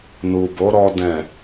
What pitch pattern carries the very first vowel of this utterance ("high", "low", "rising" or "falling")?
low